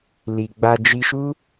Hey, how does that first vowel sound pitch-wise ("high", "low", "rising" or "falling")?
low